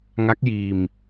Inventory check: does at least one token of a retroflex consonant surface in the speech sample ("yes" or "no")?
no